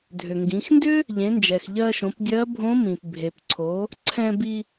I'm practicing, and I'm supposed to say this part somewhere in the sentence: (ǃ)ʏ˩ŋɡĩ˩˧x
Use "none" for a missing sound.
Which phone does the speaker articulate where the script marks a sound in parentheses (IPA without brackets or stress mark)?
dʱ